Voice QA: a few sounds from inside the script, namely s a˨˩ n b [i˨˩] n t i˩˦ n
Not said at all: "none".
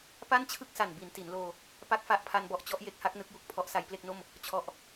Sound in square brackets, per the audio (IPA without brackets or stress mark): i˩˦